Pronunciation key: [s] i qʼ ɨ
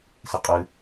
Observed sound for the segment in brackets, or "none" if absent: s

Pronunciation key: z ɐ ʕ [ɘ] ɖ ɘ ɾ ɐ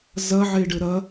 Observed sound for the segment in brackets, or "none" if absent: e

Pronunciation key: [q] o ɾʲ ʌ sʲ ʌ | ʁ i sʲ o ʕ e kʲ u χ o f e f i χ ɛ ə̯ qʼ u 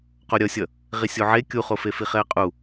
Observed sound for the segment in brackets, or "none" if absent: q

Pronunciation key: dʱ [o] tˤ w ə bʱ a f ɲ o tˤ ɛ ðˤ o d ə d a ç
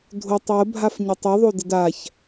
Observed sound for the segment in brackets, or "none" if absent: o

